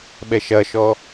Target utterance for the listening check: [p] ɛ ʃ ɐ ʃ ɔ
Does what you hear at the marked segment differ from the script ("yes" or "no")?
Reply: yes